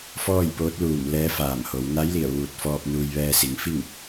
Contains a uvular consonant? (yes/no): no